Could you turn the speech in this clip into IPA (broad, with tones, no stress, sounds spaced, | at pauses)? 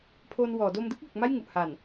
pʰ oː˧ n w ɔː˩˦ d o˧ m d ɯ˥˩ k̚ l u˨˩ k̚ m a˥˩ j ŋ u˨˩ ʔ h a˨˩ n